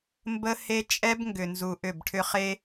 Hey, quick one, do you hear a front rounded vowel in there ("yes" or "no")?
yes